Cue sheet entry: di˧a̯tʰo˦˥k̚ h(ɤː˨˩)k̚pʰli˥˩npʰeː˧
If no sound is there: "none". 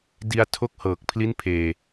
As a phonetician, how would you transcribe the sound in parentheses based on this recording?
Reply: ɤː˨˩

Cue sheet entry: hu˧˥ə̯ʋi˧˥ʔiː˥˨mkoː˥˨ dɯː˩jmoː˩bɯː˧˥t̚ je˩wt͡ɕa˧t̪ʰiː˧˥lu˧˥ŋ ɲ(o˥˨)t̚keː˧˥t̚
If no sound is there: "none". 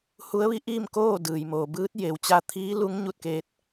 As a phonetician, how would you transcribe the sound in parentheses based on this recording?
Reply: u˥˨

